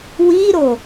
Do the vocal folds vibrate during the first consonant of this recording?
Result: yes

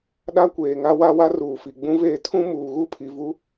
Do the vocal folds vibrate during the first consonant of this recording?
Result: yes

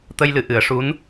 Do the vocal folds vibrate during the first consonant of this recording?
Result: no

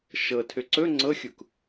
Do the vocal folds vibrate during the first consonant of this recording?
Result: no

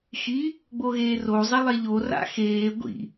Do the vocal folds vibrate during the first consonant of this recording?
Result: no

